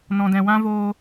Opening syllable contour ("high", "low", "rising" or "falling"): low